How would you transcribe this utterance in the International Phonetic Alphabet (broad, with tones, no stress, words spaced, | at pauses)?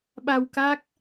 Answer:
ɓa˧wka˦˥k̚